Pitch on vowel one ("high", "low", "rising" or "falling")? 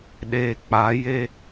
low